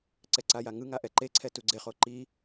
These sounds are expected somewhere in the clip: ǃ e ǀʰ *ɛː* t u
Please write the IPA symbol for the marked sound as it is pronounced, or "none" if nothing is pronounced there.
ɛ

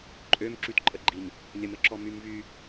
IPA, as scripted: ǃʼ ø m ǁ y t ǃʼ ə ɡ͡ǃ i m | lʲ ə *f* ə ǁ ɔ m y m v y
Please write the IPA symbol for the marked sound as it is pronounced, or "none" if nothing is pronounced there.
m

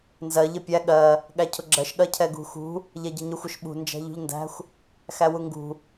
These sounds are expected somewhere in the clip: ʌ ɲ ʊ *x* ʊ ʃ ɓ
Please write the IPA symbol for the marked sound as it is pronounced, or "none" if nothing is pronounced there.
xʷ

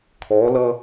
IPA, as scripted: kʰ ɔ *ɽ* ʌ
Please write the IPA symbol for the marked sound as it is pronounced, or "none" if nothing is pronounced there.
l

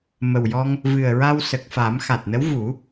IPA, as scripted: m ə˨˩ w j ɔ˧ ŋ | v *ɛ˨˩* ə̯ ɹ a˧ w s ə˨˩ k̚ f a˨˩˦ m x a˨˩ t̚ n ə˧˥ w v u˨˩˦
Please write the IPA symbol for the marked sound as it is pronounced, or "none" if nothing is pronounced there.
ɨ˨˩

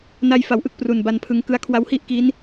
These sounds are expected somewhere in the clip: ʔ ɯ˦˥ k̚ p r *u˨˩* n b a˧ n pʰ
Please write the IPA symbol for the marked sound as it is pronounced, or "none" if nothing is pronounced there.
u˨˩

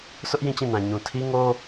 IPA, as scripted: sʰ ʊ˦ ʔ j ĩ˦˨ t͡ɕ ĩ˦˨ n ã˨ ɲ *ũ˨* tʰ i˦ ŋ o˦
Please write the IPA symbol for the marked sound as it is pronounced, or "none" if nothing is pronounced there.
ũ˨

